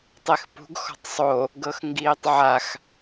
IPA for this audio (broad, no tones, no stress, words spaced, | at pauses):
tˤexpṳɡ xɔ̤tˤsˤo | ɡɤxŋɡiːtˤʕax